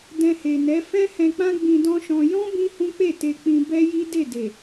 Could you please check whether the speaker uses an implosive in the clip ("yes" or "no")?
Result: no